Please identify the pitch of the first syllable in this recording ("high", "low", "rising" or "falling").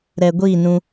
low